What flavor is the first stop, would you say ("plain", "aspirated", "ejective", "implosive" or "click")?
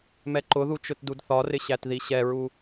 click